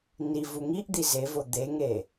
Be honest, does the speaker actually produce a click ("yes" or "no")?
no